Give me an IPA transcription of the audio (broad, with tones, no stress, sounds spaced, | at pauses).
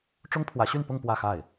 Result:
ʈ͡ʂ ʊ˥ ŋ pʰ w ä˧˥ ɕ y˥˧ n p ʊ˥˧ ŋ p w ä˥˧ x a˥˩ ɪ̯